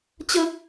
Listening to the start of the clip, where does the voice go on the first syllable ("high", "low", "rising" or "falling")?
high